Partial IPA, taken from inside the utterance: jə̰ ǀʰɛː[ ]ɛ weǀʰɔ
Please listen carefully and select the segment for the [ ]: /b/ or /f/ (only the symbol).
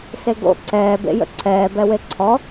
b